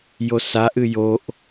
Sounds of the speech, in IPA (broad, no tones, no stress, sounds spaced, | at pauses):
j o s a ʔ ɨ j o ʔ